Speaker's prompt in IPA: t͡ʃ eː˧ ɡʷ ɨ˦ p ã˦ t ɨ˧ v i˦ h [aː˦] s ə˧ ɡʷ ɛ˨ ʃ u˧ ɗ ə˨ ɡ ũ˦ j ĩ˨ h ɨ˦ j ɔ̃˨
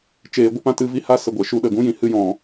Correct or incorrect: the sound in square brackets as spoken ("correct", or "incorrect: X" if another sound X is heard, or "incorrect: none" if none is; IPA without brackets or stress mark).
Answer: incorrect: a˦